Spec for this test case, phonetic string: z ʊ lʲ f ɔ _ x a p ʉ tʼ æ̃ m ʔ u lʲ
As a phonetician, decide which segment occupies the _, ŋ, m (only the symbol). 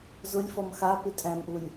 m